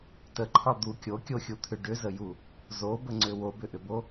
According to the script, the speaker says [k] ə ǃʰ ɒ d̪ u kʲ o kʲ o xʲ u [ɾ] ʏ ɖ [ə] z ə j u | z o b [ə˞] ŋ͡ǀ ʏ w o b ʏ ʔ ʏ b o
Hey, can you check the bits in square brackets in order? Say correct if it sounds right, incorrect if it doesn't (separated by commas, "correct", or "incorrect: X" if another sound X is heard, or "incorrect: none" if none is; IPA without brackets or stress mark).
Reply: incorrect: t, incorrect: t̪ʰ, incorrect: ʏ, incorrect: ə